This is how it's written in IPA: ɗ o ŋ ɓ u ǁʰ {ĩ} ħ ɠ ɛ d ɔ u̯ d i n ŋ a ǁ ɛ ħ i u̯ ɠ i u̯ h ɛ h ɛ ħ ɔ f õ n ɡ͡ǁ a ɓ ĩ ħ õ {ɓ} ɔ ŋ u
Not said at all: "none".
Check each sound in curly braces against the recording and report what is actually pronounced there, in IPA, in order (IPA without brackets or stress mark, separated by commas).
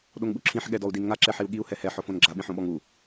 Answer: ĩ, ɓ